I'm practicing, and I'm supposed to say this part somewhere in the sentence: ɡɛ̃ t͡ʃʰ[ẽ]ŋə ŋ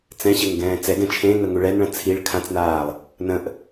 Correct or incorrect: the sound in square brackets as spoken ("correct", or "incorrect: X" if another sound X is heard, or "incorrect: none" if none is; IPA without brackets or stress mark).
correct